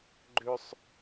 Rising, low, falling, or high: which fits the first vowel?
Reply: high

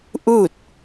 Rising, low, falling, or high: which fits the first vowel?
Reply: falling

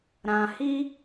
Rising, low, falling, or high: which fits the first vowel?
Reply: low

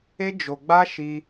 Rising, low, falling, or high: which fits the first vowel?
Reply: high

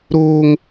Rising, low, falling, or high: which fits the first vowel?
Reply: high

